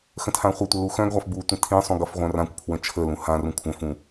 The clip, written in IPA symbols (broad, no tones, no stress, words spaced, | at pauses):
xə̃tʰãχʷɘtʷə luxœ̃ɡʁʷaf butʷə̃ tʰĩsˤũ ɡʌfʁʷœ̃rãkʷpʰwə̃ t͡ʃʰəlũ hãrũ kʷʰœ̃fũ